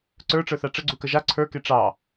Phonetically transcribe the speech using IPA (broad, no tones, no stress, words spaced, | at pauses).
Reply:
ǀə˞ʈ͡ʂə˞θa ʈ͡ʂəɡ͡ǀukə ʒa ǀʰə˞ke ʈ͡ʂɑ